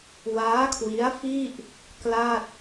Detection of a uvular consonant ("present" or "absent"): absent